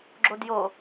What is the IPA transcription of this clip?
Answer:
ɡ͡ǁodjo

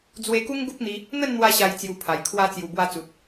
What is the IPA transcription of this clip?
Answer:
d͡zwe˧ku˦ŋ ɡu˦p̚n̪i˧ | n̪ə˥˧nn̪wa˧ɕa˨˩j t͡sju˧pʰa˨˩j kʰwa˧t͡sju˨˩ bwa˧t͡su˨t̚

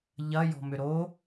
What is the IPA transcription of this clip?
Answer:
ʎɐ jɔ̤mʏɾo

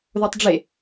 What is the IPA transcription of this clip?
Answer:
ðotˤɖ͡ʐe

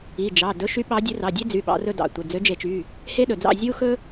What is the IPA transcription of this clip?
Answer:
i˩˧˩ d͡ʒɑ˩˧˩ dɵ˨˦ʃy˨˦ ɓɑ˨˦dʲʉ˨˦ rɑ˩˧˩dʲe˦d͡zy˩˧˩ ɓɑ̰˨˦rɵ˦dɑ̰˩˧˩ tʷe˩˧˩ d͡zø˨˦d͡ʒe˨˩˦t͡ʃy˩˧˩ | he˦ɗɵ˩d͡zɑ̰˦˨ zʲu˦xɵ˦

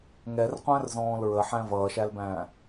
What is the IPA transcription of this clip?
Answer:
ŋɛrqʷæ̃rzɔ̃ːl ɹəħæ̃ vʌːʃælbæ̃ː

